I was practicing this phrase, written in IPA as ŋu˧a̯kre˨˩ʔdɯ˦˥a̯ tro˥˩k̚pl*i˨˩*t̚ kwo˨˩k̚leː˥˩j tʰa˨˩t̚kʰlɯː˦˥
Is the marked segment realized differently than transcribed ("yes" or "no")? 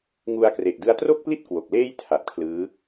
yes